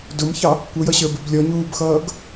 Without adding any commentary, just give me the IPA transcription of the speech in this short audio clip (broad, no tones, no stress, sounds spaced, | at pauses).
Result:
d ʊ m ç ɑ | kʷ ʌ j ʌ ɕ ə˞ b ɪ b lʲ ɔ ɲ uː b x ʌː ɡ